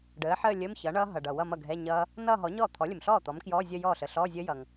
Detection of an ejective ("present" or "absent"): absent